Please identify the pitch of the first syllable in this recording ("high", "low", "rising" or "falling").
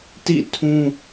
falling